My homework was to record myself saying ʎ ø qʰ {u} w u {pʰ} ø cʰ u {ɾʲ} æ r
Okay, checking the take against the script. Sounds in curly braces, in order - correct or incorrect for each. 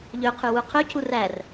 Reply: incorrect: ʉ, incorrect: qʰ, incorrect: r

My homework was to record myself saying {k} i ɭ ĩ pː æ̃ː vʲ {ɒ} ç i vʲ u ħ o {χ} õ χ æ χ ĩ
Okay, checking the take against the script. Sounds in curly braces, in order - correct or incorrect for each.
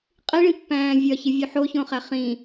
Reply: incorrect: qʼ, correct, incorrect: ç

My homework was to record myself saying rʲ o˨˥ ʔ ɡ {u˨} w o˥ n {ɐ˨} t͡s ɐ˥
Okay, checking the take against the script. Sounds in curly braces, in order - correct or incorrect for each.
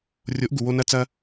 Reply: correct, incorrect: ɐ˥

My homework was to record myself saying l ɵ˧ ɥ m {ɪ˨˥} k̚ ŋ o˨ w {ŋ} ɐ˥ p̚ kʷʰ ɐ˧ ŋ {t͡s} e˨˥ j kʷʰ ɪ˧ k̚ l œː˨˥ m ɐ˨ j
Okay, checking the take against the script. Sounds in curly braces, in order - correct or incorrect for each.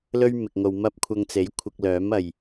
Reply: incorrect: ɪ˨, incorrect: m, correct

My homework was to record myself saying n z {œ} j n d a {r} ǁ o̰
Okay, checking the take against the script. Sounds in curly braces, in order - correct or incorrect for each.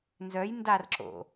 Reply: correct, correct

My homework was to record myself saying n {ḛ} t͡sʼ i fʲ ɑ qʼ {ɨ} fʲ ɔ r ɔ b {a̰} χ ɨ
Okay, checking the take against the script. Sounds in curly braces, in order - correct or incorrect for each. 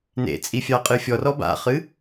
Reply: correct, correct, correct

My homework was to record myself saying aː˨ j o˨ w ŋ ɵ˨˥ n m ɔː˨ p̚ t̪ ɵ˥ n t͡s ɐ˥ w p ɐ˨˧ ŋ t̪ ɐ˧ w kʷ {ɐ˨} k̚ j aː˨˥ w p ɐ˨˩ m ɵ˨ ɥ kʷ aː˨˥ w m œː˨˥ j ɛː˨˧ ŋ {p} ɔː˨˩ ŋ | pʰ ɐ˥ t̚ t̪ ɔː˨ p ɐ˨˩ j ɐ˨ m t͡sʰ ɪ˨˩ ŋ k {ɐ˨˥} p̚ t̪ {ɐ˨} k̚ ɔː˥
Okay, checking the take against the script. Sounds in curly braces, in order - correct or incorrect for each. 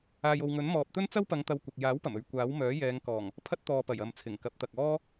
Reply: correct, incorrect: k, correct, correct

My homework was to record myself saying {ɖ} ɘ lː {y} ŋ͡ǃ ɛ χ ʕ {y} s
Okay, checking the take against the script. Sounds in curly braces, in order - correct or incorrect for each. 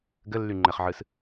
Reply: incorrect: ɡ, correct, incorrect: ɨ

